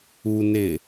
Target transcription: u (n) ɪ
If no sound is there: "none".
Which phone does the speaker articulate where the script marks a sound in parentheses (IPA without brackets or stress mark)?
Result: n